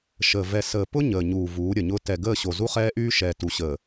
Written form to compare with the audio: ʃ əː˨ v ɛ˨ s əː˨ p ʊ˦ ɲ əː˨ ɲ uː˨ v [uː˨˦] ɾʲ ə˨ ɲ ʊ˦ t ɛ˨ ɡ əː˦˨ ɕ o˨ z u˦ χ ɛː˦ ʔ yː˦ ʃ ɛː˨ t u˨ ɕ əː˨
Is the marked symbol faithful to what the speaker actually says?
yes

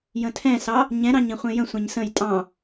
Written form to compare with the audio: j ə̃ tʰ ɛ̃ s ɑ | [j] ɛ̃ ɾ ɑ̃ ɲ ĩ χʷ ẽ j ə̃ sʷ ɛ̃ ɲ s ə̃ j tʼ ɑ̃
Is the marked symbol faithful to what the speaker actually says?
no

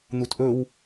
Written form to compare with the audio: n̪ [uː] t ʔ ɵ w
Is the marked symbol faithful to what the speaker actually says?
no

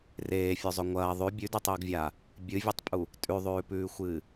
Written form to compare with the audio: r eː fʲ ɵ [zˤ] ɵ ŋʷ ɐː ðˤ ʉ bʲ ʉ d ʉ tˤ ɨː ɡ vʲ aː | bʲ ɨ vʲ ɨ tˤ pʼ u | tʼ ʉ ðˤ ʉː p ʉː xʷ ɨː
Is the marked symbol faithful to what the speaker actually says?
yes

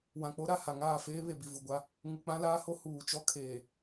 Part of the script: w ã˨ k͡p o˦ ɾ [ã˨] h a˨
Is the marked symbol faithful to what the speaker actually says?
no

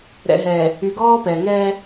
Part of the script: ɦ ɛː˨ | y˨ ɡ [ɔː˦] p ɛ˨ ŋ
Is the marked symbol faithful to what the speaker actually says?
yes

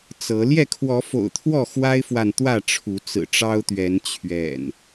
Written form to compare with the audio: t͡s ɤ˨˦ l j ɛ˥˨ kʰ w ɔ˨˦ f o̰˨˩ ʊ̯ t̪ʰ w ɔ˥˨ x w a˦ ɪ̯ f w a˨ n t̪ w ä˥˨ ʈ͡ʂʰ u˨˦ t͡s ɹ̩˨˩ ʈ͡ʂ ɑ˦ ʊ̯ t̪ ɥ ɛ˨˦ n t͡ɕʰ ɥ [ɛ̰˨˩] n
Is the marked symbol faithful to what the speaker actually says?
yes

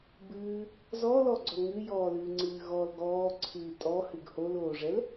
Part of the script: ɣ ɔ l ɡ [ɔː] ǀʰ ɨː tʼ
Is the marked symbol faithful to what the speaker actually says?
yes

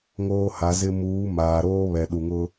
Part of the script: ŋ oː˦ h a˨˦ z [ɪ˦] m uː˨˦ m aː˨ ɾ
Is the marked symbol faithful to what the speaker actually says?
yes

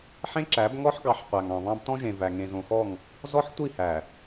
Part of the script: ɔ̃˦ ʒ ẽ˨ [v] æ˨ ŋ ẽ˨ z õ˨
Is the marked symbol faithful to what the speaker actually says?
yes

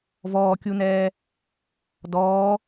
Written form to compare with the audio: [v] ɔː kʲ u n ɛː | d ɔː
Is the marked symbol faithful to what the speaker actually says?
yes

